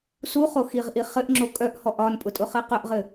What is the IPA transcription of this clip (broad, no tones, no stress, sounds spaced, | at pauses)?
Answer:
s u χ o x i ʁ ʔ i χ ɘ ʔ ŋ͡ǁ o kʼ œ ʔ h ɔ ʔ ɒ n pʼ ʊ tʼ ʊ χ ɘ q œ ʔ ʁ ɘ